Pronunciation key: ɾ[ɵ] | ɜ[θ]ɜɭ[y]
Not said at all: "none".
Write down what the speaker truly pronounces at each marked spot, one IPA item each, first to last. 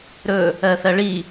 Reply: ɵ, θ, i

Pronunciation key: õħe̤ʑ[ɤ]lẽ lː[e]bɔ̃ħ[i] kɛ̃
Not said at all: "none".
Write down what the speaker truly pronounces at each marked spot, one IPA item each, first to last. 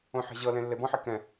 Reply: ɤ, e, i

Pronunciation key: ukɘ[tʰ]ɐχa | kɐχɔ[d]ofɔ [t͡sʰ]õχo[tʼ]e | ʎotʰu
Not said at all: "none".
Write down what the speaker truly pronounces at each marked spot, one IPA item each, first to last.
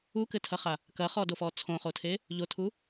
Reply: tʰ, d, t͡sʰ, tʰ

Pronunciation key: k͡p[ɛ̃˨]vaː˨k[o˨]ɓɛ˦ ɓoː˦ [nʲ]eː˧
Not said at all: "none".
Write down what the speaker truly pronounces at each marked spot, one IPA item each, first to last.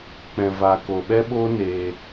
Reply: ɛ̃˨, o˨, n

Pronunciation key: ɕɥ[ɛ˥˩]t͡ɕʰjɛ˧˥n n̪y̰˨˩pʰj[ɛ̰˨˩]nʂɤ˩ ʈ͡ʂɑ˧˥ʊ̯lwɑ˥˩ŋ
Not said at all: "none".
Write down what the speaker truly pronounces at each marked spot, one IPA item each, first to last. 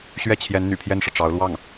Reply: ɛ˥˩, ɛ˥˩

